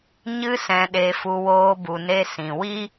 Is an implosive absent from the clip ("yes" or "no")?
no